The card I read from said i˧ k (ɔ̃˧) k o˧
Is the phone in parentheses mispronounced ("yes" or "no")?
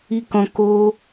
no